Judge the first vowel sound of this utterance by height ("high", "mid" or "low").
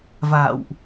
low